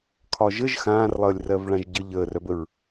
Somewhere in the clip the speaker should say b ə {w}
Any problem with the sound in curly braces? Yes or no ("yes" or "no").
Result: yes